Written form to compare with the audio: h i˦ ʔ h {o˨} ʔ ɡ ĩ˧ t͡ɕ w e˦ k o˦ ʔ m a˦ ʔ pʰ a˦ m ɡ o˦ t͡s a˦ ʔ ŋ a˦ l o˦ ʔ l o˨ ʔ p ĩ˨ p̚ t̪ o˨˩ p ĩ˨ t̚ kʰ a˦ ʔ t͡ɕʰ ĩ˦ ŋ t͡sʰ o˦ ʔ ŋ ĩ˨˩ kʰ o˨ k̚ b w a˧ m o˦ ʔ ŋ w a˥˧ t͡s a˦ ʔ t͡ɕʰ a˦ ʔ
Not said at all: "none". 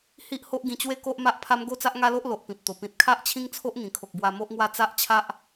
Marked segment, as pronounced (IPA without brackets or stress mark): o˦